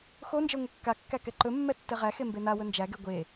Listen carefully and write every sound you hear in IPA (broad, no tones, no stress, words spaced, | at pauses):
xond͡ʒə˞ ŋʷekːakːæ kɛǃɵmːɛ tːɛʁæxe mbenawɵ nd͡ʒæɡe ɡʷe